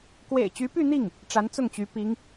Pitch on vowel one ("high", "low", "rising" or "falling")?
low